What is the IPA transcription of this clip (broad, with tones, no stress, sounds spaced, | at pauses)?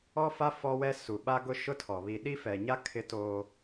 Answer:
ɔ˦ f a˦ f ɔ˦ w ɛ˦ s u˨ ɓ a˦ ɡ ʊ˦ ʃ ʊ˦ tʰ ɔ˨ β i˨ ɗ i˦ f ɛ˨ ɲ a˦ kʰ ɪ˦ t oː˦